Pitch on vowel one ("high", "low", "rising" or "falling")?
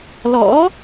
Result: rising